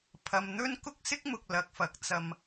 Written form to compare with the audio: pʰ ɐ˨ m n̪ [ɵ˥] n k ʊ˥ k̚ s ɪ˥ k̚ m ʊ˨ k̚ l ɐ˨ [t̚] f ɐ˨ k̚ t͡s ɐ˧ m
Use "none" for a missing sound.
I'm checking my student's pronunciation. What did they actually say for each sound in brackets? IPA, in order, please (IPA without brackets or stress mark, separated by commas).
ɵ˥, k̚